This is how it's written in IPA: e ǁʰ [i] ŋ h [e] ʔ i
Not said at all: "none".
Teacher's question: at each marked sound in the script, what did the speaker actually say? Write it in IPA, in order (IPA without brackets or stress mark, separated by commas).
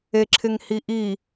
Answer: ɪ, i